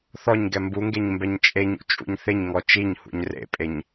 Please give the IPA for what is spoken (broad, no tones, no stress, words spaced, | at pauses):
θɔɲɡɛ mbuŋɡeɲmbɛɲ t͡ʃʼeɲṵt͡ʃʼṵɲ θɪɲŋɔ t͡ʃiɲhṵɲ rḛpʼeɲ